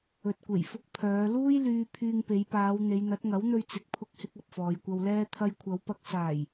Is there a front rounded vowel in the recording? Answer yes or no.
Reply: yes